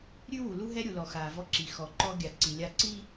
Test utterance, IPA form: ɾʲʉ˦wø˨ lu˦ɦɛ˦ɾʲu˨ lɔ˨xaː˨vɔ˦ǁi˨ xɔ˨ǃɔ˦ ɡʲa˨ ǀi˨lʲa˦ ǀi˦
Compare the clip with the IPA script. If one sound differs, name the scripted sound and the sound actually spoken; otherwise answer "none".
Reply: ø˨ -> u˨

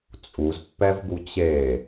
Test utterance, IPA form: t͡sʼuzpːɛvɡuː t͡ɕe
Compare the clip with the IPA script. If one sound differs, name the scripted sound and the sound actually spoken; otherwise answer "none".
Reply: uː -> u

